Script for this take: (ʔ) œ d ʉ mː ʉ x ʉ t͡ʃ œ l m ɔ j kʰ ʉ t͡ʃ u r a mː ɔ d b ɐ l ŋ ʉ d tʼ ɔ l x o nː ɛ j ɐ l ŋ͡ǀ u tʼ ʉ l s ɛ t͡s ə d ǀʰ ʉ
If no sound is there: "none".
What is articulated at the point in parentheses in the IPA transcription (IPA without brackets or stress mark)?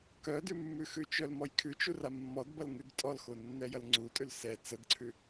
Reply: k